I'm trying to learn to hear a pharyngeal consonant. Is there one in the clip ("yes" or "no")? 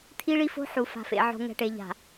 yes